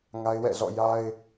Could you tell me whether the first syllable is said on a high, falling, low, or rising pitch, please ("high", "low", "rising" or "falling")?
high